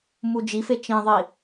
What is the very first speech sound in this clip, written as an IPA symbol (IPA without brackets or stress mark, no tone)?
m